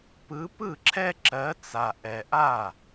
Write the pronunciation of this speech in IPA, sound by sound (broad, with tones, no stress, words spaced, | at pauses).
pɯ˨˥pɯ˥˩ǁʰɛ˦ ǁɜ˨˥t͡sa˨ʔɛ˨ʔa˥˩